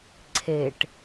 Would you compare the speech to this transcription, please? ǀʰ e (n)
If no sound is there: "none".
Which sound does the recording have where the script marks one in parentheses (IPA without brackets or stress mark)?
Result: ʈ